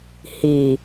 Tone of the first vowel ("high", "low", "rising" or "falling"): low